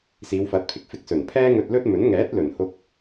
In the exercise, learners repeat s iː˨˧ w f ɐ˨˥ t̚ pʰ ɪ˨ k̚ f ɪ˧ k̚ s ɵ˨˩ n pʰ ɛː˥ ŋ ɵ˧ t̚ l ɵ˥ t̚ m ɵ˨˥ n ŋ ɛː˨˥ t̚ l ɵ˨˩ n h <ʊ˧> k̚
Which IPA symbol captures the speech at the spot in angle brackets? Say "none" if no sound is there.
ʊ˧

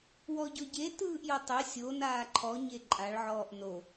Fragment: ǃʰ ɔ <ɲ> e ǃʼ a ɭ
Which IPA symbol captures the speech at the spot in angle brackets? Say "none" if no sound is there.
ɲ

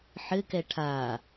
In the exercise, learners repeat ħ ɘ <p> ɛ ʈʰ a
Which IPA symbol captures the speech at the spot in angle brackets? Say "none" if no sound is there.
k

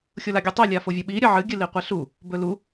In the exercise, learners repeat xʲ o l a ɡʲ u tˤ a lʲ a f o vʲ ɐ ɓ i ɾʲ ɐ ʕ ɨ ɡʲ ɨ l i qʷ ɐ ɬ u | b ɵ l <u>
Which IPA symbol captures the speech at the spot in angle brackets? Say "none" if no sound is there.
u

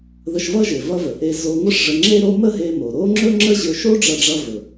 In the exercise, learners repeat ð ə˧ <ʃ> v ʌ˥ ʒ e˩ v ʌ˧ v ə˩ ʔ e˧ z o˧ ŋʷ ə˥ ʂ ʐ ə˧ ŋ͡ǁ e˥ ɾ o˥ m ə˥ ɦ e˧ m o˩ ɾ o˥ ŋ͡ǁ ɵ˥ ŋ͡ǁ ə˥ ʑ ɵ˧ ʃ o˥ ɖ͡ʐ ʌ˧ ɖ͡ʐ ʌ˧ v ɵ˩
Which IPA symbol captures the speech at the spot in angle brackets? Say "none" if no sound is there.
ʃ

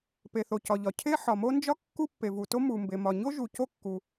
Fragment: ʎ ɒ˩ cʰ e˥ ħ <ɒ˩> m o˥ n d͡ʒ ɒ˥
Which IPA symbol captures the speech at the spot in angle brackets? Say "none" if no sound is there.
ɒ˩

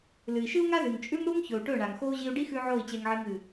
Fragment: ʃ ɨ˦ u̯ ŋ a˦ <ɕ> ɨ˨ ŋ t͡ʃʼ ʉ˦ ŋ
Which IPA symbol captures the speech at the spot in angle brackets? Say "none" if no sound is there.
z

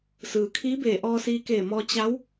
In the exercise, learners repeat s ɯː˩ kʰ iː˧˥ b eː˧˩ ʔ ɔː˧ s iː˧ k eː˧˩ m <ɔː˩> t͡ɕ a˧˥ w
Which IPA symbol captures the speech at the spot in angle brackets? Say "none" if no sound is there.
ɔː˧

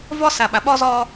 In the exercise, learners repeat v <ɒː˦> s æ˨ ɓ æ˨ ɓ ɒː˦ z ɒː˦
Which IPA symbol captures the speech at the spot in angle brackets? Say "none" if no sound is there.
ɒː˦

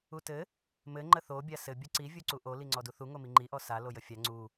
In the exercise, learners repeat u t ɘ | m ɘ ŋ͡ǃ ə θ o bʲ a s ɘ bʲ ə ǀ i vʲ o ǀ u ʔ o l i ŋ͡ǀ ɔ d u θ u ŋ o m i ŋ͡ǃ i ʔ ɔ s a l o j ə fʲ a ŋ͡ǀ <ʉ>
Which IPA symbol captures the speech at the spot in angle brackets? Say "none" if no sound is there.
u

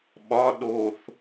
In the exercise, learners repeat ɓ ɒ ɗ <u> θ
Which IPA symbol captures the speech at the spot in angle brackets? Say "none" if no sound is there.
o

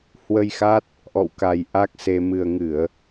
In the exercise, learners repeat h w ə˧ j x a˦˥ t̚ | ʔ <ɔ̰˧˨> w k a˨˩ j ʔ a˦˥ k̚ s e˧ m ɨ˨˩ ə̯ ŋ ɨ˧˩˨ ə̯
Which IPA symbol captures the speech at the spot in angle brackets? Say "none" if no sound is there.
ɔ̰˧˨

